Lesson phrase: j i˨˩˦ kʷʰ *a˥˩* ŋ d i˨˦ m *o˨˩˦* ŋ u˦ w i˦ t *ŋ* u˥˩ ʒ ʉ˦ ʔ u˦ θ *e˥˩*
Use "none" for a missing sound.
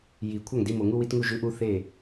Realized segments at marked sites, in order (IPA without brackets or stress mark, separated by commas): a˥˩, o˨˩˦, ŋ, e˥˩